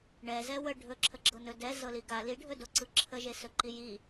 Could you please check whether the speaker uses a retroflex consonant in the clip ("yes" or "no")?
yes